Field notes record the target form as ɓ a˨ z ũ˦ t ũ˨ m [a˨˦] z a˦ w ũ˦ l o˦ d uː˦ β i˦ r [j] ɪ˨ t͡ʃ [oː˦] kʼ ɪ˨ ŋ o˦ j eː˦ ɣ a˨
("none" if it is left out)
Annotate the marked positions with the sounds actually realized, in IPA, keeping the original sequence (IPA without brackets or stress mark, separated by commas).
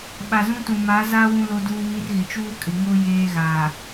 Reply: a˨˦, ɣ, uː˦